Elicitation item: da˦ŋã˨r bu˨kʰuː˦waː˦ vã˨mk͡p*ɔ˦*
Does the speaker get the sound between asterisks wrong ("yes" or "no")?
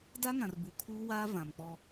no